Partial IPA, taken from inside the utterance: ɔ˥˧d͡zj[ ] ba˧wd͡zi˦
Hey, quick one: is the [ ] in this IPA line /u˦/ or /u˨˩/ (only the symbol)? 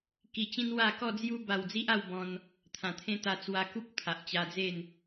u˦